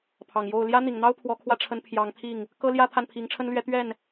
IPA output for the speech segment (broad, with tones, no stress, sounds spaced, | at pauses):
pʰ ɑ˨˩ ŋ j o˥˩ ʊ̯ l j ä˥ n̪ i˨˩ ŋ n̪ ɑ˥ ʊ̯ pʰ w ɔ˧˥ kʰ w ä˥˩ ʈ͡ʂʰ ə˧˥ n pʰ j ɑ˧˥ ŋ t̪ʰ i˥˩ ŋ | k ɤ˥ l j ä˥ t̪ʰ a˥˩ n pʰ i˧˥ ŋ ʈ͡ʂʰ ə˥ n l ɥ ɛ˧˥ t̪ ɥ ɛ˥˩ n